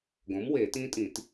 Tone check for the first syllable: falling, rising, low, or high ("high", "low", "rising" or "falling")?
rising